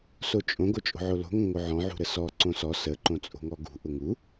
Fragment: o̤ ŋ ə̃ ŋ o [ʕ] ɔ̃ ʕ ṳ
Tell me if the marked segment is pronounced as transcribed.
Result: yes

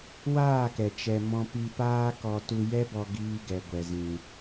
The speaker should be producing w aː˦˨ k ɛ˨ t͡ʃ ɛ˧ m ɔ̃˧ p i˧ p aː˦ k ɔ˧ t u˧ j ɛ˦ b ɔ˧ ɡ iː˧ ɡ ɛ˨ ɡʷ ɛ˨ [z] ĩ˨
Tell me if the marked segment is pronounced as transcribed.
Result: yes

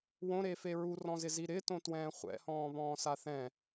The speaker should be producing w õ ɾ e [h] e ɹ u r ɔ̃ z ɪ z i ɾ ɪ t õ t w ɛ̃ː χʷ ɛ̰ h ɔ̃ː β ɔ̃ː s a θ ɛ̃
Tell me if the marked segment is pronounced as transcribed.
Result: no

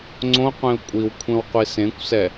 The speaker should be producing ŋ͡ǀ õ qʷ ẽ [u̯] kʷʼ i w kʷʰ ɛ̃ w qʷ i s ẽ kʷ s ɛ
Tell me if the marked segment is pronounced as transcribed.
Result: yes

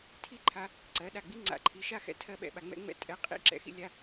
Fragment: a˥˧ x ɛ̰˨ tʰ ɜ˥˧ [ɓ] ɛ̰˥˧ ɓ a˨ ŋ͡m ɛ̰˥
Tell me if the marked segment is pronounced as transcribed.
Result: yes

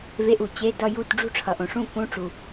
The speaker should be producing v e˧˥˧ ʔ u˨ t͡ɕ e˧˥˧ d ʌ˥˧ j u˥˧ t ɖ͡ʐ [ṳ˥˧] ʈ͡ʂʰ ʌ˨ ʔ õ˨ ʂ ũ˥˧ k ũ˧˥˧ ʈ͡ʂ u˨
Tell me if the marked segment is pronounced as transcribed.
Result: yes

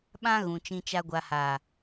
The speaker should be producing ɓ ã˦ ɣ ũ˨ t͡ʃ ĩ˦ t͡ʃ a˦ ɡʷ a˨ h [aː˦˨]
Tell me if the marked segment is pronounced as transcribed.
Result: no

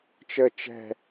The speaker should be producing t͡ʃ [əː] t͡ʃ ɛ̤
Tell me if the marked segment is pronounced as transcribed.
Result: yes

